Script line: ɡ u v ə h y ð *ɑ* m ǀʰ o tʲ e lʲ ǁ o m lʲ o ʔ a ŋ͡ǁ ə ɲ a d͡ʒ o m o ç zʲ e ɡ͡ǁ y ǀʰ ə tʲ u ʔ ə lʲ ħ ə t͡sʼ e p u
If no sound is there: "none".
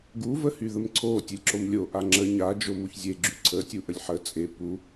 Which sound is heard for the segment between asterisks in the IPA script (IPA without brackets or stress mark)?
ə